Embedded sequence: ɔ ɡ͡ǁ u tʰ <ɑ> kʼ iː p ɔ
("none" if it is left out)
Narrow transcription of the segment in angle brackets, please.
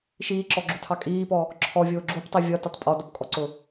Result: ɑ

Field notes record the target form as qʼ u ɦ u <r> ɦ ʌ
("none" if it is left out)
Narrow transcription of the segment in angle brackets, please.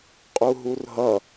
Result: r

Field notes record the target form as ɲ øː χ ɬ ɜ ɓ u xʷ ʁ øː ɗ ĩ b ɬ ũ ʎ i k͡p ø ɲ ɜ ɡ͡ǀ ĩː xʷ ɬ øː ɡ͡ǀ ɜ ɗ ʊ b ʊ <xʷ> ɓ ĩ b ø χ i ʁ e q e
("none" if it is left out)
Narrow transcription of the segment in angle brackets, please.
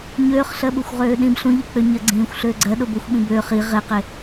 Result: xʷ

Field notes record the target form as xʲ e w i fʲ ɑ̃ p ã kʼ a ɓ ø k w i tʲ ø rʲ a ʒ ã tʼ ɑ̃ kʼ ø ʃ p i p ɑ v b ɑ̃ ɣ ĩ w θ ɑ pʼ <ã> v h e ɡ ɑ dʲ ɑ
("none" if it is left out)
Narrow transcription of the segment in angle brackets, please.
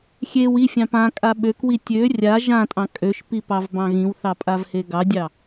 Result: a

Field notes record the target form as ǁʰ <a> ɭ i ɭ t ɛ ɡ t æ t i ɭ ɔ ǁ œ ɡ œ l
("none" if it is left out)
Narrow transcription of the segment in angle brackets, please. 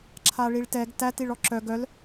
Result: a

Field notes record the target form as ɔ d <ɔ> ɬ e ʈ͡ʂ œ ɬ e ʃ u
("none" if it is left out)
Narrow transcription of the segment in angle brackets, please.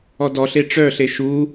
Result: ɔ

